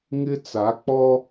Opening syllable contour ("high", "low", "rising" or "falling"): high